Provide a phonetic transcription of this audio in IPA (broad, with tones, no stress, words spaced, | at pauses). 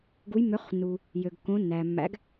ɡu˨˥jmːø˨˥χnːu˩ | jø˩ɡkːõ˨˥nːæː˩ mːæ̰˨˥ɡ